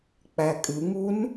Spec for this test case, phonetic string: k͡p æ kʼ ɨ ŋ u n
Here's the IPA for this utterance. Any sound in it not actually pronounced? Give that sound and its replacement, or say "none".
none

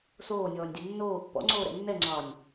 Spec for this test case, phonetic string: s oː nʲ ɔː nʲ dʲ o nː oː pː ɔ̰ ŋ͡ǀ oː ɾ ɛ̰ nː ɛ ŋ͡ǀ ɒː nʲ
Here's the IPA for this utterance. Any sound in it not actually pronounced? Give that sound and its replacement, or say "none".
none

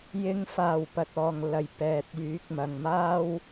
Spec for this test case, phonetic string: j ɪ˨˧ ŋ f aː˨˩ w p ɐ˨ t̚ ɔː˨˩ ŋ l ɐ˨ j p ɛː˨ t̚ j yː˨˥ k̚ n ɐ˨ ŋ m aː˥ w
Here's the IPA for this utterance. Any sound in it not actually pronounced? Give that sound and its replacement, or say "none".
n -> m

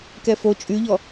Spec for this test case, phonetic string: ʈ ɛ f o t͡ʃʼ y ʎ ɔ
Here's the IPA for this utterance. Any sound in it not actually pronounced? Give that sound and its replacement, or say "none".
ʈ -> k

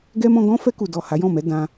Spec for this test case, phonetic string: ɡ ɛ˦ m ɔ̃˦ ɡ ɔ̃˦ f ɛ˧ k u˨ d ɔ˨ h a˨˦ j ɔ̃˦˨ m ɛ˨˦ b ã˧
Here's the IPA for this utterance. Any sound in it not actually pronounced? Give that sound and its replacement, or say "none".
b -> d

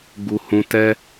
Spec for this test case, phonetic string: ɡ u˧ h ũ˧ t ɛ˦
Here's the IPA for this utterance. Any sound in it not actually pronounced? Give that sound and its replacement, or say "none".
none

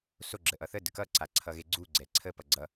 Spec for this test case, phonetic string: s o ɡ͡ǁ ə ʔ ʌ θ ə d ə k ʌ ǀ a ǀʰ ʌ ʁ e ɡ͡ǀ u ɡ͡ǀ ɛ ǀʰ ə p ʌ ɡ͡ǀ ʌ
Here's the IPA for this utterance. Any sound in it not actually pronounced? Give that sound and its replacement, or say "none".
ʁ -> ɣ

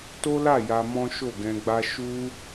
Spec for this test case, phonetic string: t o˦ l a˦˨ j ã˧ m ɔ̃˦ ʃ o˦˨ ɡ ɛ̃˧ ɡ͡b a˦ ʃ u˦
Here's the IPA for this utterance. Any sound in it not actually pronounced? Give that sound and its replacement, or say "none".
ã˧ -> a˧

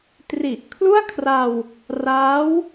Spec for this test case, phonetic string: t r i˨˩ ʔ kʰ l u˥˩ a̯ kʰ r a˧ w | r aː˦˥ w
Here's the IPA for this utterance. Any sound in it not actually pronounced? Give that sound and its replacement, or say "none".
none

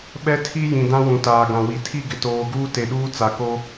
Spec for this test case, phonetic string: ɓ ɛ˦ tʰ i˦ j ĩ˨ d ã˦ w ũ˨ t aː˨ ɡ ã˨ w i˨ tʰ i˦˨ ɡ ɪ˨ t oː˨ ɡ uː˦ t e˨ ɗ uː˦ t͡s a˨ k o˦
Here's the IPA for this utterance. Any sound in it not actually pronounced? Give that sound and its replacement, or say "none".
none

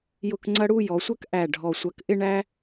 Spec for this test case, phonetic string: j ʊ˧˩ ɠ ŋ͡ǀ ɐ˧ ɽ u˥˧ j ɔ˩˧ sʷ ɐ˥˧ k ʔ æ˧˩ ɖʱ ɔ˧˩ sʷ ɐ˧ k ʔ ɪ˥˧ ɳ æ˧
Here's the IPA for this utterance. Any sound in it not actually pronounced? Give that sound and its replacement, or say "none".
ɠ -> k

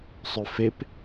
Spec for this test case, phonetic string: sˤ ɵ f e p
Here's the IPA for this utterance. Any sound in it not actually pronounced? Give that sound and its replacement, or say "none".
none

